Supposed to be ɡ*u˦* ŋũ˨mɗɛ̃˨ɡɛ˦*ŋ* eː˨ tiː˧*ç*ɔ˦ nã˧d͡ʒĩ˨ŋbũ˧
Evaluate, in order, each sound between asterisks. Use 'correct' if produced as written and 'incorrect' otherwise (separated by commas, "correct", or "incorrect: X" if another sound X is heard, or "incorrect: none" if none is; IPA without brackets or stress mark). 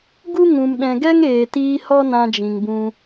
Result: correct, correct, incorrect: h